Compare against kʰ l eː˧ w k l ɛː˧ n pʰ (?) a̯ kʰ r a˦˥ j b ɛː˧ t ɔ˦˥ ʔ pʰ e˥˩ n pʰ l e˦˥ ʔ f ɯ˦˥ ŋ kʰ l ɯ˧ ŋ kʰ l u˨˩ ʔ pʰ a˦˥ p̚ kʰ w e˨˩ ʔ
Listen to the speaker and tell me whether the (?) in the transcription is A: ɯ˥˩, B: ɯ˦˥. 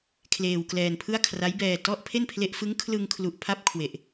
A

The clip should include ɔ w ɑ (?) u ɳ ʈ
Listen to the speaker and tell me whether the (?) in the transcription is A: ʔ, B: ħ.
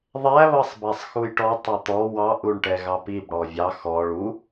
A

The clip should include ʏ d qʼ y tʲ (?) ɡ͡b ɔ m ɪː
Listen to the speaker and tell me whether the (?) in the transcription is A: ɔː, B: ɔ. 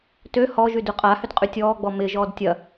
A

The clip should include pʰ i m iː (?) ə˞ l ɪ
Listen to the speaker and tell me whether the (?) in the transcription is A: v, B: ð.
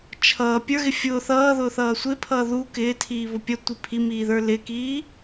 B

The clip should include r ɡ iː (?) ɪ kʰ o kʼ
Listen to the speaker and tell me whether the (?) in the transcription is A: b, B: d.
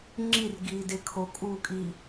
B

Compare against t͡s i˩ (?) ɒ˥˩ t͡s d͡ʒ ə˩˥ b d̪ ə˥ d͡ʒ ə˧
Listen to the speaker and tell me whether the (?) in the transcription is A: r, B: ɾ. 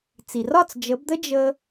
A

